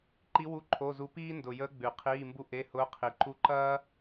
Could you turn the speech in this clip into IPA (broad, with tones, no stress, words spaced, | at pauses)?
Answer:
ǃi˧˥wu˧˥˧ ǃʰo˧˥˧zu˧˥ piː˥ndʊ˨˩jəː˧˥ ɡ͡bʉ˨˩qʰiː˧˥˧mbu˥ʔe˧˥˧ hʊː˧˥qʰi˨˩ ǃu˧˥ǃɐː˥